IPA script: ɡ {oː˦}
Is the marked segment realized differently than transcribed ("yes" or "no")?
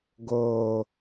yes